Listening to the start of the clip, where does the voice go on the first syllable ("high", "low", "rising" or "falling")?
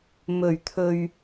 low